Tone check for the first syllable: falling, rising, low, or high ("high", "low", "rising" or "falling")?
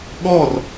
falling